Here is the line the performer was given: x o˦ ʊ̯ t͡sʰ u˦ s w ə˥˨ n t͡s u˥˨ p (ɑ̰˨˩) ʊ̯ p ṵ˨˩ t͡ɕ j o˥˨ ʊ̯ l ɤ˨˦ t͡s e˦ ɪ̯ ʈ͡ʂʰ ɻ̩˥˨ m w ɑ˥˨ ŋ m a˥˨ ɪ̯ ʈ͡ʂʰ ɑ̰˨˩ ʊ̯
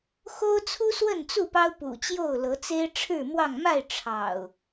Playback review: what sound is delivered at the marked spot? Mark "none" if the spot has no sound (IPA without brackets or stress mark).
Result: ɑ˦